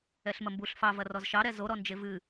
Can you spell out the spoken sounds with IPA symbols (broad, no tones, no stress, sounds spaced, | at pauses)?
ɛ ɬ m ɐ m b u ɬ f ɑ v ɐ r ɔ z ʃ ɑ ɾ ɛ z o ɾ ɔ n d͡ʒ e v ɨ